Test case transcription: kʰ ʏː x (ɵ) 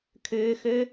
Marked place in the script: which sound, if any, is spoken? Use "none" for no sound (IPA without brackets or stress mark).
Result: ø